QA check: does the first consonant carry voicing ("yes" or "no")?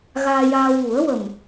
yes